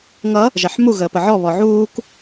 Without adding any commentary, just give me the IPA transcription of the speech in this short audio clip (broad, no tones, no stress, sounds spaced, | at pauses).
ŋ ʌ | ʒ ɛ ħ m u ɣ əː p ə ʕ ɔ β ɔ ʕ uː k